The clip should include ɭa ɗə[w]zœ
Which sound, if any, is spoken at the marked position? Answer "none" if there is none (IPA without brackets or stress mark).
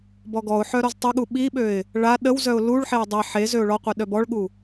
w